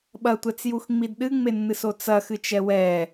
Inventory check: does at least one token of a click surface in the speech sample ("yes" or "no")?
no